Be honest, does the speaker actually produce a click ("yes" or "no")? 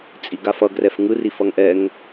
no